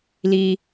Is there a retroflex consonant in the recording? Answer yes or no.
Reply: no